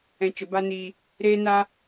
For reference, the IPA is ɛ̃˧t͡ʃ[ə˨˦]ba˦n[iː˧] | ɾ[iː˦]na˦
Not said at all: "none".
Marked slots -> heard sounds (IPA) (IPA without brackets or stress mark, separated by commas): ə˨˦, iː˧, eː˦